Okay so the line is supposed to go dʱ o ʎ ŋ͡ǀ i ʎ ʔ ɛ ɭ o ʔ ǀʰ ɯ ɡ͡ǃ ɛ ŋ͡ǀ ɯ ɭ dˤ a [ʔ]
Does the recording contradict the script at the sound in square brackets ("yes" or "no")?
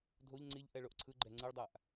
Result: no